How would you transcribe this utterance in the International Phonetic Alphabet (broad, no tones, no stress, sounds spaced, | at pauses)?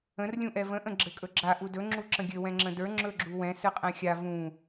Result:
ə̃ r lʲ ũ ʔ ɛ v ə̃ ʔ ə̃ ɡ͡ǁ ɘ kʼ ɵ ɡ͡ǁ a ʔ u d ɵ ŋ͡ǁ u ǁ ə̃ ɡʲ ɘ w ɛ̃ ŋ͡ǁ ə̃ d ə˞ ŋ͡ǁ ɵ ɡ͡ǁ u w ɛ̃ s ɨ qʼ ɛ̃ xʲ a v ũ